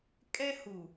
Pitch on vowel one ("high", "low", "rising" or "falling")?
high